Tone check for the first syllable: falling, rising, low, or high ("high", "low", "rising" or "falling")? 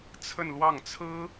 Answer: falling